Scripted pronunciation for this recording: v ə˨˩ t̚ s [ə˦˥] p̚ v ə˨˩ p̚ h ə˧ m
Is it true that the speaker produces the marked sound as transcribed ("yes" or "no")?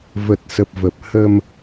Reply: no